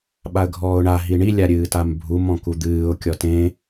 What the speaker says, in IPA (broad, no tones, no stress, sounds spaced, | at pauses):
ɓ a ə̯ ɡʱ ɔː ʊ̯ ɳ a ɦ i ɳ i lʲ a ɾʲ ɨː t a m bʱ u m ɔ̃ k u d̪ ɨː ʊ̯ kʲ ɔ t ẽ